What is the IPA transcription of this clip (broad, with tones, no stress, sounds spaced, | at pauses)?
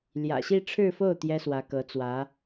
l j ä̰˨˩ ɕ i˥˧ ʈ͡ʂʰ ɻ̩˥˧ f o˥˩ ʊ̯ t̪ j ɛ˥ s w ä˧˥ k ɤ˧˥ t͡s w ä˧˥